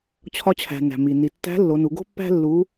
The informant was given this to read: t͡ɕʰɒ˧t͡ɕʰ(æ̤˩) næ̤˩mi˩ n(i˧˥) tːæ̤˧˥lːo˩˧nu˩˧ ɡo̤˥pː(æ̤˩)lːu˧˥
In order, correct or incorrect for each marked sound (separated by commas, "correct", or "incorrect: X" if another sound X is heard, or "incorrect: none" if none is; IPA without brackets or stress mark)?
correct, incorrect: i˩, incorrect: æ̤˥